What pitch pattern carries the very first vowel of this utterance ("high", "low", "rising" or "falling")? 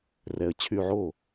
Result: low